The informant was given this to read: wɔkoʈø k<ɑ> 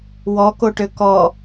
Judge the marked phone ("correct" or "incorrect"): incorrect